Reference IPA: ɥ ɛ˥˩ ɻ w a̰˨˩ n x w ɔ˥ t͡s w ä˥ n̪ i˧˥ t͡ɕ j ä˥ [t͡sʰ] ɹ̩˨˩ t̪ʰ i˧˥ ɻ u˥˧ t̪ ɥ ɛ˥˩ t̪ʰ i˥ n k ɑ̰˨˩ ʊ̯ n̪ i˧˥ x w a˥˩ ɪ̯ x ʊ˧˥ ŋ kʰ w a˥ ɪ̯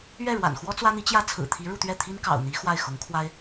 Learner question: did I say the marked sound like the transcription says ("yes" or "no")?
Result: yes